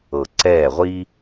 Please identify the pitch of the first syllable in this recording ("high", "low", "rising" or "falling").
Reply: low